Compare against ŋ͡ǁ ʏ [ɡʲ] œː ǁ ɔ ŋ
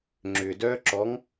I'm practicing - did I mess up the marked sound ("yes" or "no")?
yes